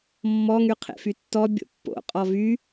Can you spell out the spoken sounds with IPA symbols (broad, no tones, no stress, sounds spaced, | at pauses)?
mː ɔ ŋ y qʰ ḛ f y tː ɔ bʲ o̰ pː o̰ qʼ ɔ v y